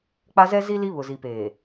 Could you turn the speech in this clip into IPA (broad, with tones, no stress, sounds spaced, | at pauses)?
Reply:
k͡p a˦ z ɛ˦ z i˦ l i˦ β ʊ˨ z i˨ p eː˨